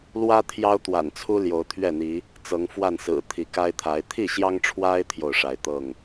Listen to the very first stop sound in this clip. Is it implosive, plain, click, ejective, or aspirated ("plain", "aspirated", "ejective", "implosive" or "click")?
aspirated